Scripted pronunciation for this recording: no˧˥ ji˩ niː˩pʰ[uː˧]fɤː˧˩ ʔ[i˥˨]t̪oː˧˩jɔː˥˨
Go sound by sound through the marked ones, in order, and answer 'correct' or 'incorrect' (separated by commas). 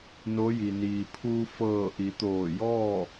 correct, incorrect